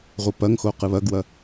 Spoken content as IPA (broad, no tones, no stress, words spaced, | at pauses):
ʁʷɨpɐŋxo qɨβɐɡwɐ